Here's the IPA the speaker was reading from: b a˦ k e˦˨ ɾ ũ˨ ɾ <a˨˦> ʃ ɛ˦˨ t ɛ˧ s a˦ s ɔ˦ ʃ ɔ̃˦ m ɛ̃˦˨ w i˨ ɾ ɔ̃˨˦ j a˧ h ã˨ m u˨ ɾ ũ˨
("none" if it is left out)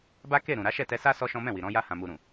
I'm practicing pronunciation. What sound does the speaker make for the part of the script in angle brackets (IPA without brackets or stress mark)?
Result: a˨˦